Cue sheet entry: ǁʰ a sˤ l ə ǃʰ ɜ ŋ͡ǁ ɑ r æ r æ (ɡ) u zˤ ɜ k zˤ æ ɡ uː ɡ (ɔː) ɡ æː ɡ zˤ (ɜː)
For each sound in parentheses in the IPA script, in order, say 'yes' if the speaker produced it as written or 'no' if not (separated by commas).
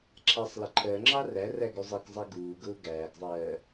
yes, no, yes